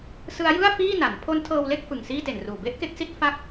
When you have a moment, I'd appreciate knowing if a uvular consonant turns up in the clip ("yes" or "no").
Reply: no